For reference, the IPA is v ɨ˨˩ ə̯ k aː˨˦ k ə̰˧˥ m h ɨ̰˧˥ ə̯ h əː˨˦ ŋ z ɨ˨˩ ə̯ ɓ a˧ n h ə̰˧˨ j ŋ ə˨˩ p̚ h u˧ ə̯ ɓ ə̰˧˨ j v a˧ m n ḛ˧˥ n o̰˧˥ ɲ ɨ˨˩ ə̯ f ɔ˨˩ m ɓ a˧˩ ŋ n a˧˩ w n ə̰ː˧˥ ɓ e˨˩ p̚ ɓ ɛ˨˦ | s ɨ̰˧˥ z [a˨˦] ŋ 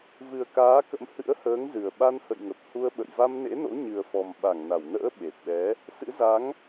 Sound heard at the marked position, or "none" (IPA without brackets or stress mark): a˨˦